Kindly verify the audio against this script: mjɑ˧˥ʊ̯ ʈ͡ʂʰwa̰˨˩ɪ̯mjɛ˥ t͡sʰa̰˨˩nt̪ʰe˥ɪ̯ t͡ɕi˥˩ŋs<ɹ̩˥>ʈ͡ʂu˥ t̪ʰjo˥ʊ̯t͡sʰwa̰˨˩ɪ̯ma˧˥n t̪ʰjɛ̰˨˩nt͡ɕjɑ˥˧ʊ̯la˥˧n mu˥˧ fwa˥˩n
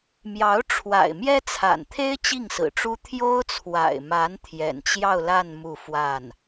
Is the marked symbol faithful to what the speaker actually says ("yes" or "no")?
no